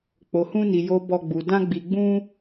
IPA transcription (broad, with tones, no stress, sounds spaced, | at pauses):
k͡p o˧ h ũ˦ n i˧ j o˧ b ɔ˦ ɡ͡b u˧ d ã˦ ɡ͡b i˧ ɡ͡b ũ˦